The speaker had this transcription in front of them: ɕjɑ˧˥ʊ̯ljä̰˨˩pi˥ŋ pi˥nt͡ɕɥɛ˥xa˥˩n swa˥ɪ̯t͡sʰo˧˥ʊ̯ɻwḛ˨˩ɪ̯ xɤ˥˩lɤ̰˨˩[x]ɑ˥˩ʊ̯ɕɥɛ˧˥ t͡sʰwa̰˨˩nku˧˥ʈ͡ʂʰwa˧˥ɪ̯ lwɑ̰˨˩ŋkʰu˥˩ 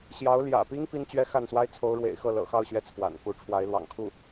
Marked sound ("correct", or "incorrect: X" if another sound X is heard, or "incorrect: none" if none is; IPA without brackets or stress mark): correct